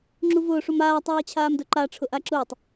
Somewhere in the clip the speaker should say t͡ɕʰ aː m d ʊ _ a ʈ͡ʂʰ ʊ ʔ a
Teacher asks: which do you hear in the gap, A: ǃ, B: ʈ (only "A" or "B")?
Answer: A